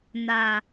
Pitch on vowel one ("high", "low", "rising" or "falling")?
low